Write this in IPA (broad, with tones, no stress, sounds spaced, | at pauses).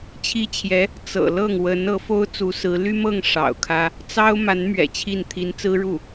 t͡ɕʰ i˥ t͡ɕʰ j ɛ˧˥ | t͡s ɤ̰˨˩ l ɤ˥˩ ŋ w ə˧˥ n ɤ˧˥ f o˥ ʊ̯ t͡s u˧˥ s ɹ̩˧˥ l y˥ m ɤ˥˩ ŋ ʂ ɑ̰˨˩ ʊ̯ kʰ ä˥ | t͡s ɑ˥ ʊ̯ m a˧˥ n m ɥ ɛ̰˨˩ t͡ɕʰ i˥˩ n t̪ʰ i˧˥ n t͡s ɹ̩˥ ɻ u˥˩